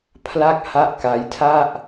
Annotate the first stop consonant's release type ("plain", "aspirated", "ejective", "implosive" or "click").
aspirated